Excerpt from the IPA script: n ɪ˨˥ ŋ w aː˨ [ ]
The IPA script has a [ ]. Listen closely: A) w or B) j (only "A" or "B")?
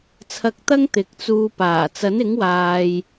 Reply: B